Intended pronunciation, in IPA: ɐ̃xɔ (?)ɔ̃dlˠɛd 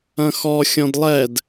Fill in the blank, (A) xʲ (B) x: A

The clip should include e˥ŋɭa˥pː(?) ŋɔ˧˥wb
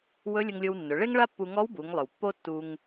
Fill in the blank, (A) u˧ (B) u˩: A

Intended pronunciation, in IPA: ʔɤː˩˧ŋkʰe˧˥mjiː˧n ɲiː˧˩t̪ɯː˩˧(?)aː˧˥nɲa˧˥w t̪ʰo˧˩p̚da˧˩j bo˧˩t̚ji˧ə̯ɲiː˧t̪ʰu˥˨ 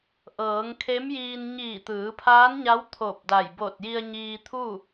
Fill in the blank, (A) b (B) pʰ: B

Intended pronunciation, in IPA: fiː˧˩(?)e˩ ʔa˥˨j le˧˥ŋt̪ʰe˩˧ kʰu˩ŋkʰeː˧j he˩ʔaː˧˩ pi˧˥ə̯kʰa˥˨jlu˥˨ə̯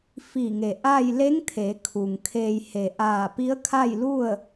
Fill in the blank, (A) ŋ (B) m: A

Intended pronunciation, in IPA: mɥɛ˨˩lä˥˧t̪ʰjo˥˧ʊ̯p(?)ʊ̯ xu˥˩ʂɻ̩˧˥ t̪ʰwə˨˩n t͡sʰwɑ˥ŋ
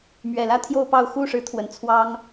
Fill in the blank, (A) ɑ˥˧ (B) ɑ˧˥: A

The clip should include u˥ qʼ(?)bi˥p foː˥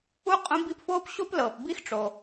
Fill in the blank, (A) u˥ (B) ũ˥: B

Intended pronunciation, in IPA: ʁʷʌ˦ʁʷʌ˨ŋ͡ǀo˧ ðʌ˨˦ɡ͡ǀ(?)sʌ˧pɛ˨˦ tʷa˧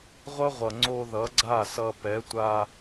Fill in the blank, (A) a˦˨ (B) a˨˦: A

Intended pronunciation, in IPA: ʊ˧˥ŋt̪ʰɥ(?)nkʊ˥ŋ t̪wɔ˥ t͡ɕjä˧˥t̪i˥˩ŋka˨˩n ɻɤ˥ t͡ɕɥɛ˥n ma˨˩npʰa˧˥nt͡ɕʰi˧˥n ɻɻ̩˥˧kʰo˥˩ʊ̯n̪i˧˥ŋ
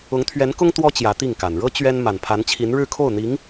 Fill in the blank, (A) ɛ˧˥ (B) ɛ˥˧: A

